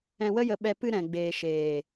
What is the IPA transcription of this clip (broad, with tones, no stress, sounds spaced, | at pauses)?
ɛ̃˧ w ə˦ j ə˧ ɓ ɛ˧ p ɨ˧ ɾ ɛ̃˨ ɡ͡b eː˨ ʃ eː˨